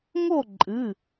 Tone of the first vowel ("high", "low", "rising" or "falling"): falling